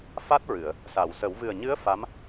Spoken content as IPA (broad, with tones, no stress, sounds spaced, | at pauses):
f a˦˥ t̚ ɹ ɨ˨˩˨ ə̯ | s a˨˩˨ w s ə˨˩˦ w v ɨ˨˩ ə̯ ɲ ɨ˧˥ ə̯ f a˧˥ m